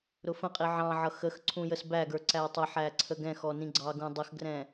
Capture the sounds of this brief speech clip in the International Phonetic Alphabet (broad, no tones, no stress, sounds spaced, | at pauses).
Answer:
ɾ ʊ f ə̃ qʼ i ʕ ɑ̃ ʕ ʌ x ə x ǀʰ ũ j ə s b æ ɡ ə˞ ǀ æ tˤ ɪ ħ æ ǀʰ ə ɡ ɛ̃ x ɔ n ĩ ɡ͡ǀ ɑ ɡ ũ dˤ ə x ɡ r ɛ̃